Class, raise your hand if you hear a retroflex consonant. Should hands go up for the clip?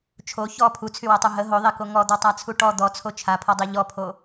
yes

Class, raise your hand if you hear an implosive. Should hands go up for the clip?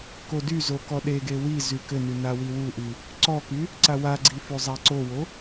yes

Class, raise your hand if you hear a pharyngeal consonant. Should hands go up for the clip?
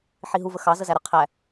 yes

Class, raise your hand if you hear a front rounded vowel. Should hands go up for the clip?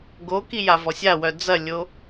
yes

